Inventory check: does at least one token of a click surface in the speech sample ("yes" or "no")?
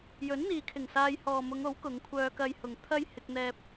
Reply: no